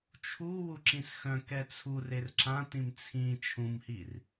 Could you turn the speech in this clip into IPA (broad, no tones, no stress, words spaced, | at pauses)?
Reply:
t͡ʃʰu wuǁĩsxœ̃ kɛt͡sʰur erǁã tĩmt͡sʰĩ t͡ʃʰũmhir